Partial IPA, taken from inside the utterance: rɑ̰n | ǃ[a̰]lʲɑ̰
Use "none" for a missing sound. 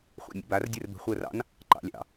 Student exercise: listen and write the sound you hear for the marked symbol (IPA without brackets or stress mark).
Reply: ɑ̰